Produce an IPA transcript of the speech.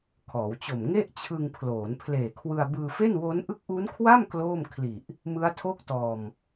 kʰɔː˩˦wt͡ɕo˨˩m ŋe˥˩ʔt͡ɕʰɯ˧ŋpʰloː˩˦n pʰleː˨˩kʰwɯ˧a̯ bɯː˧fe˥˩nwo˦˥n ʔɯ˦˥k̚ʔu˦˥nkʰwa˥˩m kloː˥˩mkʰli˨˩ʔ | mɯ˦˥a̯tʰo˥˩k̚tɔː˧m

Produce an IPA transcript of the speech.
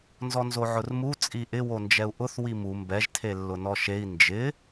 nzɔnzoʕʊrmu t͡sʼiʔɪ wond͡ʒɛu̯ʔʊθ wimu mbɛʒ tʰelːʊnɔʃei̯ nd͡ʒɪ

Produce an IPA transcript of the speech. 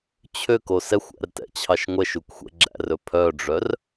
t͡ɕʰøko sɛxʷæ̰rtɛ̰t͡ɕʰɑʃ ŋʷɛʃukʷxʷɛ̰ ɡ͡ǁæ̰rɵ pʰœɖ͡ʐœr

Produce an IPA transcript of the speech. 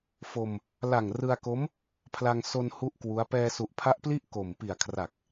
fo˧m | la˨˩ŋrɯ˧a̯ko˦˥m | pʰla˧ŋ so˧n hu˥˩ʔkwu˦˥a̯ pɛː˧su˨˩ʔpʰa˦˥ʔpli˥˩ʔ ko˨˩m pi˨˩a̯kʰra˨˩k̚

